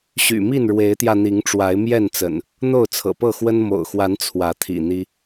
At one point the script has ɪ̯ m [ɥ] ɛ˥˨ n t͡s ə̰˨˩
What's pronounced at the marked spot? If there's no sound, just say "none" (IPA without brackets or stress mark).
j